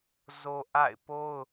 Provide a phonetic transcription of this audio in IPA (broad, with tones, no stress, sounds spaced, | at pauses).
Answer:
z o˦ ʔ a̰˦˨ ɪ̯ p o˦ ʊ̯